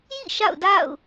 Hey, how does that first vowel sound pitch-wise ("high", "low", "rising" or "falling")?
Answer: falling